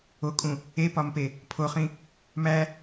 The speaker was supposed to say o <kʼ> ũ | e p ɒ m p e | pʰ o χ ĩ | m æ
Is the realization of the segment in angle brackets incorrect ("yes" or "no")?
no